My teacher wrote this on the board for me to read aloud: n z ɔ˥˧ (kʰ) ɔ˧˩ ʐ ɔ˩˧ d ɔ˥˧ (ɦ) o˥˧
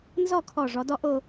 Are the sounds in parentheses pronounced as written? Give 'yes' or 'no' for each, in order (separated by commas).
yes, no